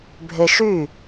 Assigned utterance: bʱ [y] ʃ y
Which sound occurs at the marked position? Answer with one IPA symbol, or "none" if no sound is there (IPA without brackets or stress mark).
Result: e